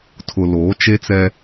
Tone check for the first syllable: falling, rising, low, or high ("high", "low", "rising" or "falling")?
low